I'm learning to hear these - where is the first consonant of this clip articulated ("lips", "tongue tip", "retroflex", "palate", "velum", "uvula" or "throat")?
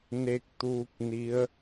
tongue tip